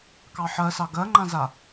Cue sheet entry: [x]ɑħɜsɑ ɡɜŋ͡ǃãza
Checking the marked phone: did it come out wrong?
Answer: yes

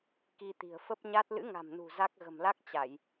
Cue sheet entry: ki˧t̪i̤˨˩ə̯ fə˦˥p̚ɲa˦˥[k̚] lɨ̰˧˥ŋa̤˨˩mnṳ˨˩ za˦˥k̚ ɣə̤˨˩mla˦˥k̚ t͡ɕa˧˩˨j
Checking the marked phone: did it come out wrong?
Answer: yes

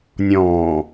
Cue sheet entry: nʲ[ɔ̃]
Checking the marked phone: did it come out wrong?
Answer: yes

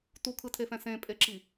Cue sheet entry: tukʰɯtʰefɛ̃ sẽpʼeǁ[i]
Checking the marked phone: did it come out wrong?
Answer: no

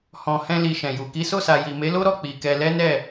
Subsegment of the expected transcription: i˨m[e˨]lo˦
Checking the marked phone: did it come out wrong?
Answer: yes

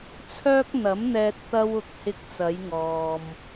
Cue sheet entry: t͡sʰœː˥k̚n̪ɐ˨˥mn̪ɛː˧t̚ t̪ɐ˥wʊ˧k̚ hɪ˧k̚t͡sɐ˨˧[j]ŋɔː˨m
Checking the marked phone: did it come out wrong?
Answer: no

